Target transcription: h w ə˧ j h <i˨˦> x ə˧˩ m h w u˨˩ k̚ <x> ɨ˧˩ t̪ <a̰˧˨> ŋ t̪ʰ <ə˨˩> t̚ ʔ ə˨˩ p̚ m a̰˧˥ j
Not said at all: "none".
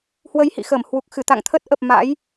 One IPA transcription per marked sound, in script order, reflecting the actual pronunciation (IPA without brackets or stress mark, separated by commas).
ḭ˧˨, x, a̰˧˨, ə˦˥